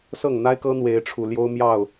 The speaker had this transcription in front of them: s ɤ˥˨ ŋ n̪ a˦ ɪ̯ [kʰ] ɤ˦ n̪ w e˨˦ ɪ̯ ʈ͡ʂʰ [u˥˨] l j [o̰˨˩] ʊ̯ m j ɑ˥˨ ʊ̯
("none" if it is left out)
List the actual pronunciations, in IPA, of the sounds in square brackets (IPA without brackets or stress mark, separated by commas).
k, u˨˩, o˦